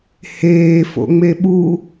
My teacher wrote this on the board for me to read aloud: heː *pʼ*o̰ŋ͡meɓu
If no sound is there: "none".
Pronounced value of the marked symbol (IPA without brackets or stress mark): f